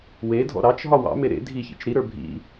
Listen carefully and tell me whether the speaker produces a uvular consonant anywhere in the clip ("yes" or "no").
no